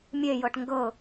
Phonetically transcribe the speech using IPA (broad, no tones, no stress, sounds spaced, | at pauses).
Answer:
mʲ e j ɤ ʈ ŋ ɡ ɤ